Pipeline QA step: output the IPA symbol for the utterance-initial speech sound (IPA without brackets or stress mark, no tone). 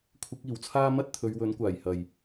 kʷʰ